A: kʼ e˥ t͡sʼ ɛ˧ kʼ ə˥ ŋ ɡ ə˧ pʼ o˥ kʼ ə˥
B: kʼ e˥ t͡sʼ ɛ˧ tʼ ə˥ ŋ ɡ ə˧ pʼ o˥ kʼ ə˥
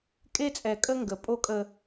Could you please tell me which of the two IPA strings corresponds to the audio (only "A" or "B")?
A